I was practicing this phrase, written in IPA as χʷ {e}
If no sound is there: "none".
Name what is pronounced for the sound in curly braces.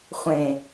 ẽ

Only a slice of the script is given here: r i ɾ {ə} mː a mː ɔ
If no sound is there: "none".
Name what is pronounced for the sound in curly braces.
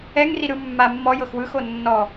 ɯ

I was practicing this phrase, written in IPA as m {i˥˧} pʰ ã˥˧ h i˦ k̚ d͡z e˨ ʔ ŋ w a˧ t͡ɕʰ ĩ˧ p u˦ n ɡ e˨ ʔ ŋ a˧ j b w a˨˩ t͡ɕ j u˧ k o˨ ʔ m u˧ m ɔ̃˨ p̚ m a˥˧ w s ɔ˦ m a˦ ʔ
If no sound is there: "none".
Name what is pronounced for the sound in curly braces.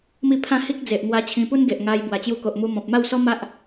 i˥˧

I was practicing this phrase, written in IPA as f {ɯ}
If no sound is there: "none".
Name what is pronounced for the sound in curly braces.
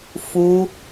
u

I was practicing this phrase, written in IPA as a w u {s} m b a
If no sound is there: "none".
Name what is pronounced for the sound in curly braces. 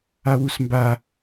s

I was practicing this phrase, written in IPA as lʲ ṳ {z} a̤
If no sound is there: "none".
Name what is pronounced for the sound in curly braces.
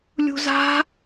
z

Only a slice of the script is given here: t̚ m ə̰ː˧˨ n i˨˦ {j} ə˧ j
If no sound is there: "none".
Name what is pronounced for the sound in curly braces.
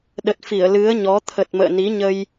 ɲ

